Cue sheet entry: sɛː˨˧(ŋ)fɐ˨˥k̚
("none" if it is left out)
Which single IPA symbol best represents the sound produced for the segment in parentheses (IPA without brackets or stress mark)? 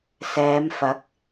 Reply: m